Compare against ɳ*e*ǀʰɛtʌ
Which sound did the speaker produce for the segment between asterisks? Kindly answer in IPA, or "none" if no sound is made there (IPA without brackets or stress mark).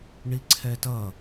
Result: i